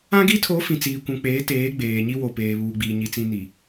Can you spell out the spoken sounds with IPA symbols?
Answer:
ã˦ɡi˦tʰo˨˦ fĩ˨t͡siː˨kʷũ˨ k͡peː˨˦teː˨˦ ɡ͡beː˨ɲi˦wo˨ peː˨βuː˨ɡ͡biː˨ ɲi˨t͡sĩ˨ ni˨

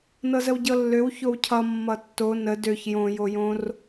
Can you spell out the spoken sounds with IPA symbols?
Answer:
nɤzəwɟɤlːøw çowcʰʌ mːʌtːo nə døç jõ jojõr

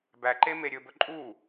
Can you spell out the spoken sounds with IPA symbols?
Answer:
bæǃe meɾʲɵbɵ ǃʼu

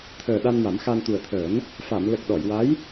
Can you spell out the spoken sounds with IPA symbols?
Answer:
t̪ʰəː˨˩ ɗa˧nma˨˩˦mxa˧n t̪u˨˩ə̯t̪ʰəː˨˩˦n | fa˨˩˨m lə˨˩k̚ ɗɔ˨˩˨jwa˧˥j

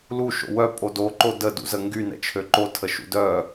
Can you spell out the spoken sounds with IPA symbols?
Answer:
lu ʃo̰wœ pʼodo ǃodə dṵzəŋɡy nɛ̰t͡ʃʰøǃo tʰəʃṵdœ

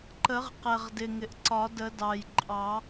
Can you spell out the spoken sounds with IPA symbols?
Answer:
ǃə˨˩˦ʁ qɛ˨˩ʁ dɪ˨˩ŋɪ˨˩ʔǀɒ˨˩˦ də˨˩˦dɑ˨˩jǃʼɑ˨˩˦

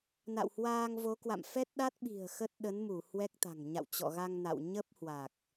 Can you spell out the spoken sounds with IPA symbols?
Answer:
na̰˧˨whwaː˧ŋvo˨˦kwa̰˧˨m fɛ˦˥t̚ɗa˦˥t̚ɓi̤˨˩ə̯ xə˦˥t̚ɗə˨˦nmu˧˩ hwɛ˦˥k̚t̪a̤˨˩ŋ ɲa̰˧˨wt͡ɕɔ̰˧˨ɣa˧ŋ na̰˧˨w ɲə˦˥p̚hwa˨˩k̚

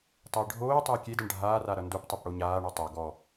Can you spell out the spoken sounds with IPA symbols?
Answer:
tˤɘːɖʱoːtˤɘː kʲedaɳ ɖʱaːra ɾʌndoptˤep ɽoɲaːɳo tˤa ɡɔ

